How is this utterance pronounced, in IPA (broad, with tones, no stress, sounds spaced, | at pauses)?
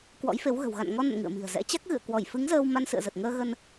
k w ɔ̰˧˥ j f e˨˦ w ɣ ə̤˨˩ w ɣ a̰˧˨ n ŋ ɔ˧ n ə̰˧˨ n ŋ ɨ̰˧˨ ə̯ m i̤˨˩ ə̯ z ɛ̰˧˥ t͡ɕ a˦˥ k̚ ɣ ɨ̰˧˨ ə̯ k w ɔ˧˩ j f ɨ˨˦ ŋ z əː˧ w m a˧ n s ɨ̰˧˨ ə̯ z ə˨˩ t̚ ŋ əː˧ ɣ ə˧ n